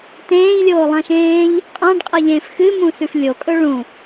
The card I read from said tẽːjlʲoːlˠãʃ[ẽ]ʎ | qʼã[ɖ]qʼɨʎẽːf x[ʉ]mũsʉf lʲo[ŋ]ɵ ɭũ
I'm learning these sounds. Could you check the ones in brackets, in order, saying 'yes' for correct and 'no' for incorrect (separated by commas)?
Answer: no, yes, no, no